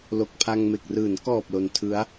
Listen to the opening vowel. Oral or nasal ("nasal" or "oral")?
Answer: oral